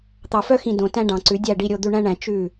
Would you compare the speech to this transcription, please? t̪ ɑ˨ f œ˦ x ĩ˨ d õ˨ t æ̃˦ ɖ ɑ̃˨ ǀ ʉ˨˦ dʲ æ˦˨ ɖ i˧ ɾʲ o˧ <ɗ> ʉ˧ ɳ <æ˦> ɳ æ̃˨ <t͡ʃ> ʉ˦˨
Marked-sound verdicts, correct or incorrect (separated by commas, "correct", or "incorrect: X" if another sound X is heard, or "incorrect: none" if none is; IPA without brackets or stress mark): incorrect: d̪, incorrect: æ̃˦, correct